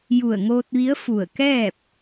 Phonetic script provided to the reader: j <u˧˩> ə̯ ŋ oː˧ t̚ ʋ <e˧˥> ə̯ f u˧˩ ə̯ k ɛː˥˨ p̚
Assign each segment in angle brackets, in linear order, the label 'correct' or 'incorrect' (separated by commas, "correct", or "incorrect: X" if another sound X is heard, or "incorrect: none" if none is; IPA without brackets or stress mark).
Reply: correct, incorrect: i˧˥